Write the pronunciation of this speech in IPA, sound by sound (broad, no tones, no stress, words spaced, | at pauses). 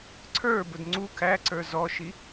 ǀʰə˞bʊd ŋ͡ǀu kʰæǀə˞ zɔʃi